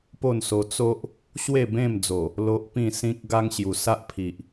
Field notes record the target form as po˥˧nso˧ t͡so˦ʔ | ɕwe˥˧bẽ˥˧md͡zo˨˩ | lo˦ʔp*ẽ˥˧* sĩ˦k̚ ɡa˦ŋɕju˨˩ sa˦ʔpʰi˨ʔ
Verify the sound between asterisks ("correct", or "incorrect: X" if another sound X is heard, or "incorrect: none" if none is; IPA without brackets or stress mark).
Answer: incorrect: ĩ˥˧